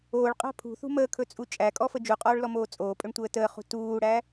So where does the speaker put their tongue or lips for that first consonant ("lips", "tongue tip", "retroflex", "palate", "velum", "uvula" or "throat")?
retroflex